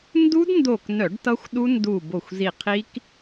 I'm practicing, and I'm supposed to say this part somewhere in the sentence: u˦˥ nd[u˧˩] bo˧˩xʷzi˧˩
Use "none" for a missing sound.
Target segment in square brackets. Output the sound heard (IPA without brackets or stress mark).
u˧˩